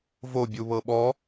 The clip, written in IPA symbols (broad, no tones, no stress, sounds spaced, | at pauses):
v o bʲ u β ɤ ɓ ɔ